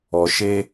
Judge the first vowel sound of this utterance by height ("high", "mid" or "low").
mid